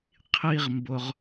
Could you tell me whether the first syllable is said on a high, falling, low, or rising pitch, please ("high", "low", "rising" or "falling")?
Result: high